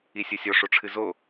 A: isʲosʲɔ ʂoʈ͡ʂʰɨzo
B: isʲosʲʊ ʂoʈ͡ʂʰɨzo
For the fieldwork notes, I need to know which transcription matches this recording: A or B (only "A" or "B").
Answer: A